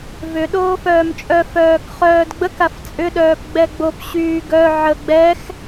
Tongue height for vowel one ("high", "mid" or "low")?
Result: high